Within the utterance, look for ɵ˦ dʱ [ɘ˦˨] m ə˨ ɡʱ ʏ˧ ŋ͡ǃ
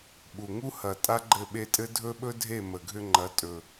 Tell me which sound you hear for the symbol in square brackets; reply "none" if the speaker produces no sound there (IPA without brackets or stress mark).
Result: e˦˨